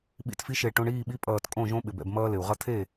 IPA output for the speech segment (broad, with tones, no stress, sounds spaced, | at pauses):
ɓ ḭ˧ t f i˧˥ ʃ e˧˩ ʈ õ˧ ɳ iː˥˩ ɓ i˧˥ pʼ ʌː˧˩ t kʼ õ˥˩ ʒ õ˧˥ ɓ ɪ˩ b ɛ̰˧˩ b m ʌː˧ l ɪ˩ u̯ ʁ ʌ˧ t̪ʰ e˥˩